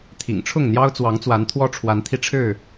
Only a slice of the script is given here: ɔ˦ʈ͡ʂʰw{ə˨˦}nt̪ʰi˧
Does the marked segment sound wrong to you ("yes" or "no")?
yes